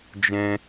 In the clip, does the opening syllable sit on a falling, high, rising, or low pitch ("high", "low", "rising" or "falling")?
high